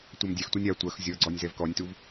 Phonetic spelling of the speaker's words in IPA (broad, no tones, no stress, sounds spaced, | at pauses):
tʷ ɐ m dʲ ɛ x tʷ ɛ nʲ a tʷ ɐ x zʲ ɔ ɡ͡ǀ ɔ nʲ z ɛ v k ɔ nʲ t u v